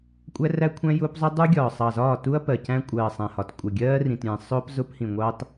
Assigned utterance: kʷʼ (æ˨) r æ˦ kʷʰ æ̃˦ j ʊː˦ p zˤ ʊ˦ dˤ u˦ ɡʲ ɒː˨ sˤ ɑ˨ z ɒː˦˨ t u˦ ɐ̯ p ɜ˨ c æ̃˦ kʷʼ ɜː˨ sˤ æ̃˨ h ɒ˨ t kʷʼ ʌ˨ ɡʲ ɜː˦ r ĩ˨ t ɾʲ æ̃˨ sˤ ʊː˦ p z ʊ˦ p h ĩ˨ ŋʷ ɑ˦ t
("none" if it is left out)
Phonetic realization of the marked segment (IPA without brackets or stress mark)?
æ˦